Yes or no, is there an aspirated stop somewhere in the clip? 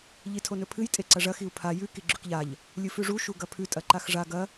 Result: yes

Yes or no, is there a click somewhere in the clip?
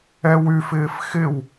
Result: no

